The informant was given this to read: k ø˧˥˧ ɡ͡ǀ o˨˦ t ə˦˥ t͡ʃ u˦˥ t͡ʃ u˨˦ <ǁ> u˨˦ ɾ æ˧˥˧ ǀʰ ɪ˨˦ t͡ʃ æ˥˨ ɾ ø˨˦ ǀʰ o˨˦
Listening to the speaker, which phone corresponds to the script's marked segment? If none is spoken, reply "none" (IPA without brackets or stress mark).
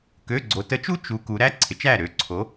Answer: k